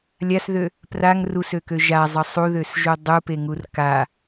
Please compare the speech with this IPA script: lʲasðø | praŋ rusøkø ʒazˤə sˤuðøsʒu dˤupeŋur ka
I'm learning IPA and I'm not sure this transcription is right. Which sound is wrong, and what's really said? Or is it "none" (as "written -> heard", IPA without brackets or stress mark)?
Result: none